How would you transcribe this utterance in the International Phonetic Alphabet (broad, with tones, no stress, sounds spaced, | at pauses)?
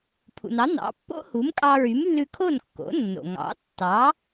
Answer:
pʰ ṵ˩ n ɑ˩˥ n ɑ̰˩˥ pː o̰˥ h u˩˥ m kʼ ɑ˧ ɹ y˩˥ m lː ʉ˧ kʰ o˥˩ n kː o̰˩˥ nː o̰˩ ŋ ɑ̰˩˥ tː ɑ˩˥